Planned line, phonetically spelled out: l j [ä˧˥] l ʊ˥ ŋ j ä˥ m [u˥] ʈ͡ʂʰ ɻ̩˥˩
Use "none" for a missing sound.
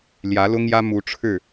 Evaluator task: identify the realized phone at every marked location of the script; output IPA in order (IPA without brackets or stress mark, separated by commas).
ä˧˥, u˧˥